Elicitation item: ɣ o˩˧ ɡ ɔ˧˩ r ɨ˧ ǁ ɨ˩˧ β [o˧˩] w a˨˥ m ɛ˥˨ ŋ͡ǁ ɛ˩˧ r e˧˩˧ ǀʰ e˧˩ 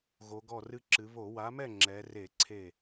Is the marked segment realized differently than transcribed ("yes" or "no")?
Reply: yes